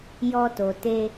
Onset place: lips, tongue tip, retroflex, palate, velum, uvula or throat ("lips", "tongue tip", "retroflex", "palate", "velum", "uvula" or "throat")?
palate